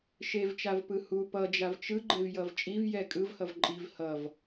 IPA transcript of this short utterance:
ʃ e v t͡ʃ a v p ɯ h u p ʌ d͡ʒ a v t͡ʃ ɯ ɡ͡ǃ e v j ʌ v t͡ʃʼ i v j ɛ kʼ ɯ v h ʌ v ǃʼ i v h ʌ v

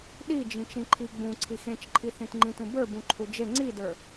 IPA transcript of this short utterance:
ɗ i d͡ʒ ĩ t͡ʃ ĩ ǃʰ i ɡ͡b ũ ǀʰ i x ẽ t͡ʃ ǃʰ i θ ĩ t ŋ͡ǃ ĩ t ũ b ə˞ b ũ ǃʰ u d͡ʒ e ŋ͡ǀ i d ə˞

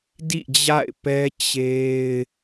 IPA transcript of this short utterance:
d ḭ˦˨ d͡ʑ a̰˦˨ ɪ̯ p ɛ˦ t͡ɕ e˦ ɪ̯

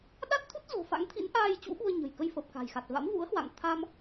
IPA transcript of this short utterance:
ɗ a˦˥ t̚ t̪ʰ u˦˥ t̚ z o̤˨˩ f a̰˧˥ ŋ t̪ʰ ḭ˧˥ n ʔ aː˧ j t͡ɕ ṵ˧˥ ɓ u˧ ə̯ ɲ ə̤˨˩ j k ə˧ j f əː˨˩ p̚ k a̤˨˩ j x a˨˩ t̚ v a̰˧˥ m v ṵ˧˥ ə̯ h w a̰˧˨ ŋ t̪ʰ a˧ m

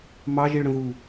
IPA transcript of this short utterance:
m ɑ ʒ i ɭ ɽ ə̃ ð u

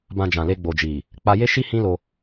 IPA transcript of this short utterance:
b ã˧ d͡ʒ ã˨ l e˧ ɡ͡b o˨ d͡ʒ i˨ | k͡p a˧ j e˦ ʃ i˦ h ĩ˦ l o˧

